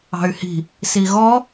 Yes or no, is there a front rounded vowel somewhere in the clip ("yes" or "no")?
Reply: yes